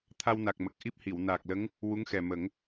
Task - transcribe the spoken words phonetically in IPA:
t̪ʰa˧wna˨˩k̚mə˨˩k̚ ʔi˦˥p̚hi˨˩˨w naː˨˩k̚lə˧˥ŋ | wu˧˥ŋxɛ˨˩ mə˨˩˦ŋ

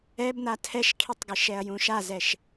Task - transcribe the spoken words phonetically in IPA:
ɛb n̪atʰɛʃkʰitˤɡɘ ʃɛɐ̯jũʃazɛʃ

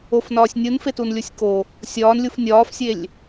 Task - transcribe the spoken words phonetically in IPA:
ofnɒːsʲ nʲunfetunlʲusʲ ko | sʲɒːnlʲuf nʲɒːfsʲelʲ

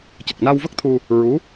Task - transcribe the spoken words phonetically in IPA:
cə˨˩k̚na˧wvə˦˥k̚t̪ʰu˧ | ɹu˧˥

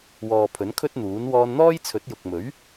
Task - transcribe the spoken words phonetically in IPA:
wɔː˨pʰɵ˨˥nkʰɵ˥t̚n̪uː˨˥n wɔː˧nn̪ɔː˥jt͡sʰɵ˨˥t̚ jʊ˨k̚mɵ˨˥ɥ

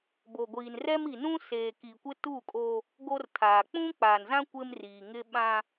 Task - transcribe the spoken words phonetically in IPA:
bo˨ɡʷiː˨nrɛ˦m i˨nũ˦ seː˨ki˨ kʷɪ˦tu˦˨kʼoː˦ | ɡo˦rtʰaː˨ k͡pũ˦k͡pa˨nzã˦ kʷɪ˦mriː˨ŋɪ˦ ɓã˦

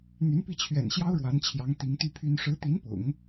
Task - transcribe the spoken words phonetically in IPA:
n̪y˧˥npi˥˩t͡ɕʰɥɛ̰˨˩nɕjɑ˥ʊ̯ ɻwa˧˥nt͡ɕʰjɑ˧˥ŋ t̪i˧˥ŋ t̪y˥pʰy˥n ʂɻ̩˧˥t̪i˧˥npʊ̰˨˩˦ŋ

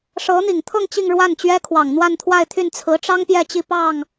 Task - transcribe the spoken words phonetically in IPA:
ʂɤ˧˥n̪i˨˩ŋt̪ʰɤ˥˧ŋ t͡ɕi˥˧ŋ ɻwa˥˩n t͡ɕɥɛ˥kʰwɑ˨˩ŋ n̪wa˥˧nt̪ʰwa˥˧ɪ̯t̪ʰy˥˩n t͡sʰɹ̩˧˥ʈ͡ʂɑ˥ŋ pjɛ˥˧t͡ɕi˥˧pɑ˥˩ŋ

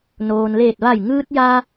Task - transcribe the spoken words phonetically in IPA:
noː˩nleː˧˩t̚ ʋa˧˩jŋɯː˧t̚ ja˧

